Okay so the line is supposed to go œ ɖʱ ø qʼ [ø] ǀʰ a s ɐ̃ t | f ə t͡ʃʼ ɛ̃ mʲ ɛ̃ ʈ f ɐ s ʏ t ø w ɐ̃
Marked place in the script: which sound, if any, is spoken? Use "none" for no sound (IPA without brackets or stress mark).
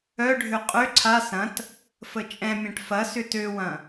ø